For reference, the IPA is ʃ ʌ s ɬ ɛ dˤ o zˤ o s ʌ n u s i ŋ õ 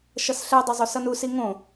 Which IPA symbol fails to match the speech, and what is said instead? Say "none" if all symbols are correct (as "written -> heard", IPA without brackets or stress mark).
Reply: none